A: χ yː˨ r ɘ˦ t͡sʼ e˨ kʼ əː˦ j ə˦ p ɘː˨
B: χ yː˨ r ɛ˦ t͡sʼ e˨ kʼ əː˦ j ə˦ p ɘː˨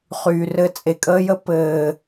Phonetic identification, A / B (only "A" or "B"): A